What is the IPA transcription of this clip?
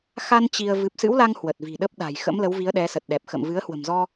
x a˧ n t͡ɕ i˧ ə̯ v ɨ˨˩ p̚ s ɨ̰˧˥ w l a˧ ŋ h w ə˨˩ t̚ v i̤˨˩ ɗ ə˦˥ p̚ ɗ a̤˨˩ j x ə̰˧˥ m l ə˨˦ w v i˨˦ ə̯ ɗ ɛ˨˦ s ə˨˩ t̚ ɗ ɛ˨˩ p̚ x ə̰˧˨ m v ɨ˨˦ ə̯ h w ə̤˨˩ m z ɔ˧

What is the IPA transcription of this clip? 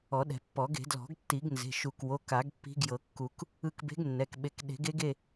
ɔ˨˩˦ ɗ ɛ̤˨˩˦ pː ɔ˨˩˦ ɡ e̤˨˩˦ d l ɔ̤˨˩˦ ɡ tː i˨˩˦ ɡ n z e̤˩˧˩ ʃ u˨˩˦ k w o˩˧˩ k a˨˩˦ ɡ pː i̤˧˥ ɡ j ɤ˨˩˦ kː u˨˩˦ k | ɯ˧ k b e̤˧˥ ɡ nː ɛ˩˧˩ k ɓ e˧ k ɗ e̤˨˩˦ ɡ e˧˥ ɡ e˩˧˩

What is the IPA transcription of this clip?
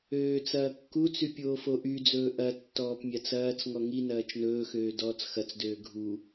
øː t͡s ɐː kː u t͡s y pʲ oː f o ʔ y d͡z ɵː ʔ ɐ tː ɔː p mʲ a t͡s ɐː t͡s ŋ ɔ ŋ i n ɐː t͡ʃ n ɵː x øː d ɔː t͡s x ɐ t͡s d øː ɡʱ u

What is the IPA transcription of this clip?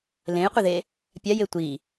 l ẽ j qʷ i ð e | pʲ a j e tʷ i

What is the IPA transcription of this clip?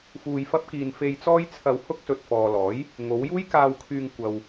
f uː˧ j f ɐ˥ p̚ k iː˧ n f e˧ j t͡s ɔː˥ j t͡sʰ ɐ˧ w h ʊ˥ k̚ s ɵ˨ t̚ f ɔː˨ l ɔː˨˥ j | ŋ o˨˧ w j uː˥ j k aː˧ w kʰ yː˧ ŋ kʷ ɐ˧ w

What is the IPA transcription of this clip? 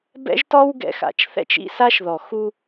b ɛ̰˦ ʒ t ɔ˦ w ɡ ɛ̰˧ x a̰˨ t͡ʃ θ ɛ̰˦ t͡ʃ ḭ˦ s a˦ ʃ ð ɔ˨ x u˧

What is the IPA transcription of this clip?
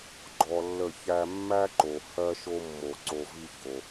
ɡ͡ǃ ɔ˧ lː ə˦˨ ç æ˦ mː æ˦ ǃ o˨ h ɜ˧ ʃ o˧ mː o˨ ǀ o˧ v i˦ ç o˧

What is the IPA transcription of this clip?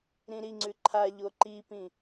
ɾ ĩ ɾ i ŋ͡ǀ ʉ ǃʰ a ʎ o ǃ i p ĩ

